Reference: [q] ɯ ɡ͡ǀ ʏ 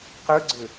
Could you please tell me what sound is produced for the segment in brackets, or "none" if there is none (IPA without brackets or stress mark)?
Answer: q